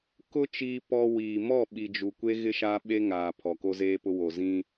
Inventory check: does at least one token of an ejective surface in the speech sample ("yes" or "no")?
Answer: no